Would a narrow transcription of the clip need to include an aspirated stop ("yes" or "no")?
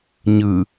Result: no